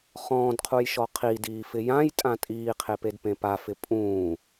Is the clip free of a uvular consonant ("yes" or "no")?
no